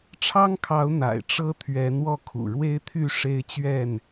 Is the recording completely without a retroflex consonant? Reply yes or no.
no